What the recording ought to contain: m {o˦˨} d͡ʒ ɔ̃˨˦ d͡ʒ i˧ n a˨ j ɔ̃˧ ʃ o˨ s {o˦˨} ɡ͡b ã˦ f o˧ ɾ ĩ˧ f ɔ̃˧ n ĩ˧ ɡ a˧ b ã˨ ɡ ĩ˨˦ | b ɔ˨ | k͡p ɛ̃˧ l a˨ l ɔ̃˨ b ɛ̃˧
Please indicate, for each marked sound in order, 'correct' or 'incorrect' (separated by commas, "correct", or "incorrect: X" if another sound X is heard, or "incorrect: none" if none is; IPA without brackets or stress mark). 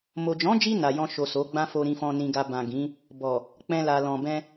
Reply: incorrect: o˨, incorrect: o˨˦